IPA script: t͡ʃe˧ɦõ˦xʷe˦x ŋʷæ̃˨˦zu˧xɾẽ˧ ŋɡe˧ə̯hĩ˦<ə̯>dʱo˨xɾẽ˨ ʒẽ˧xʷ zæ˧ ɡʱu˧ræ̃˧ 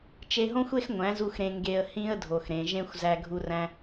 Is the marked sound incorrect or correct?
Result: correct